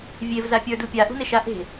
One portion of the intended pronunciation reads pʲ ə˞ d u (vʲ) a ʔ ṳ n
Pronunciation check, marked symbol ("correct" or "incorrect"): incorrect